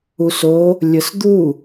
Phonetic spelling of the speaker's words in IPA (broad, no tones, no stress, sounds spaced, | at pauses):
u s o | lʲ ə s d̪ u